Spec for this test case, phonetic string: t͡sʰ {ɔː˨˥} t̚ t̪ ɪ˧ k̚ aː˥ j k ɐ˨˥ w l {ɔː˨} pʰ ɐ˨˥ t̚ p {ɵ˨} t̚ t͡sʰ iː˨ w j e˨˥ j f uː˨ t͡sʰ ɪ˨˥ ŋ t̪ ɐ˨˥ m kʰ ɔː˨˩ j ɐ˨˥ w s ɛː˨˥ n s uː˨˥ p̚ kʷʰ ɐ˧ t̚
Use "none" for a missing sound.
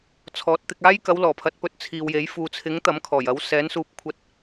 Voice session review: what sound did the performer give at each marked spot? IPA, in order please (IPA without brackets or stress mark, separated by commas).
ɔː˨˥, ɔː˨˩, ɵ˨